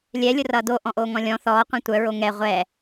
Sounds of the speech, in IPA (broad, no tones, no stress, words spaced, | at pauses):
lʲɛ lʲʊrʌːdo ʔɔ̃ʔoːŋɔ̃lʲɔ̃ θɔː qʷɛ̃tʷœ ɹoŋɛ ʁʷɛ